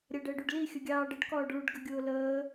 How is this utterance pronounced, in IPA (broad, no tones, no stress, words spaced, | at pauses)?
ɾʲæɖəːɖuɖli xʲəɡʲɑːɖəɖ kɔːɖɭuɖ ɡəɡʲʊːləː